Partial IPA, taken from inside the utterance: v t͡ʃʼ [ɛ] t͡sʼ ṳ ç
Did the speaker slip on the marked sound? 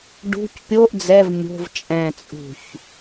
yes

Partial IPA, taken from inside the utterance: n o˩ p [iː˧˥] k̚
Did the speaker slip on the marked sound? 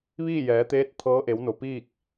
yes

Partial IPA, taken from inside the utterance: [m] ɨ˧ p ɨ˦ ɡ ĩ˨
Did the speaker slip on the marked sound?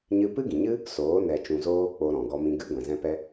yes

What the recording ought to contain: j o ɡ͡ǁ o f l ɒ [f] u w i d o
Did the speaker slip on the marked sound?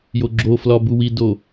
yes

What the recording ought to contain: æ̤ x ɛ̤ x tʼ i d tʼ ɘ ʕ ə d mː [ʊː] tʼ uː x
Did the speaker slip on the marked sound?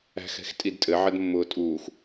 no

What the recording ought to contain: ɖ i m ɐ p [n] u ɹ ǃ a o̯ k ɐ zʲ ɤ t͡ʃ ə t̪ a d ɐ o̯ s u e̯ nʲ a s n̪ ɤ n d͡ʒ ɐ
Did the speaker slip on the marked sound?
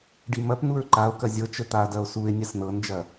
no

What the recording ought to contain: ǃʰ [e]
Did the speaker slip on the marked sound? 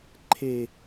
no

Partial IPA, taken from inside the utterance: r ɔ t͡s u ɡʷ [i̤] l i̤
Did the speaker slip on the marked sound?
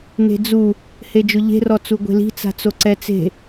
yes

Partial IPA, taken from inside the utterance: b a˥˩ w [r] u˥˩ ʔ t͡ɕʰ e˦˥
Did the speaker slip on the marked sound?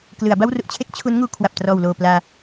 no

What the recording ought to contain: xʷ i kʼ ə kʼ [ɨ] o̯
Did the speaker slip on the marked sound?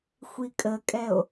yes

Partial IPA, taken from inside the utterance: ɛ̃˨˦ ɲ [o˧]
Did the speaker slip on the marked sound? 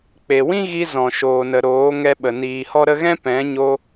no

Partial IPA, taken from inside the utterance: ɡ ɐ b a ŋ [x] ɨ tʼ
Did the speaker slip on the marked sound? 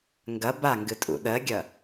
yes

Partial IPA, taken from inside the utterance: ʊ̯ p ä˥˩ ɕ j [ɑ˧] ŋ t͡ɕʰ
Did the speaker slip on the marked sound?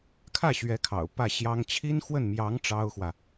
yes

